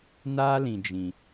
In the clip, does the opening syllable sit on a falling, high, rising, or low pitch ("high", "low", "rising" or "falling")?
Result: high